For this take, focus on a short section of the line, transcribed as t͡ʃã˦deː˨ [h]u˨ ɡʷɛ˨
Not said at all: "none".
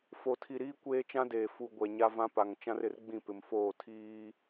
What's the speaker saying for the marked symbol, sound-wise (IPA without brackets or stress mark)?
f